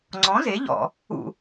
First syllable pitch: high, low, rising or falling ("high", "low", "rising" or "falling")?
rising